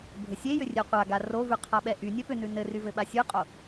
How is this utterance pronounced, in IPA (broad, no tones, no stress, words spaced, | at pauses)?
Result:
bʱɘsʲejʏ rʲeqʷa ɡarovʉ qʰaɓɛʔy nʲɛpʏnʉ nɘryvɘɓa sʲʉqʼo